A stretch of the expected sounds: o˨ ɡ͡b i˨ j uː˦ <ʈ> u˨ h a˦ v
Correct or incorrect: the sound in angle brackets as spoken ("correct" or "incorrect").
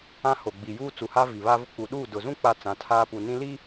incorrect